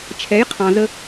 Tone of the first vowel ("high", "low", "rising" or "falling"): rising